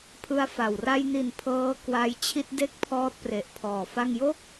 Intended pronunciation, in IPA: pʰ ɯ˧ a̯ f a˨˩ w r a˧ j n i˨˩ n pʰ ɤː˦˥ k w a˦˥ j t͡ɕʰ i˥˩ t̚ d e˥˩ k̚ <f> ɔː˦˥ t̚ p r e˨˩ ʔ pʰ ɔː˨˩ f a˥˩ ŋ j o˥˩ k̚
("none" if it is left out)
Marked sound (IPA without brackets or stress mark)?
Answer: pʰ